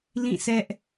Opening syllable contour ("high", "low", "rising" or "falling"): falling